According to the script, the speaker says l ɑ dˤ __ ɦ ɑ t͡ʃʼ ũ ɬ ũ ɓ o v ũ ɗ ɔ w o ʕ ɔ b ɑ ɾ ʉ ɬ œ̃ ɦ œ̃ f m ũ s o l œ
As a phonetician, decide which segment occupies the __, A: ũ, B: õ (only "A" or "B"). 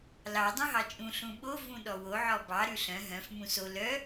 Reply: A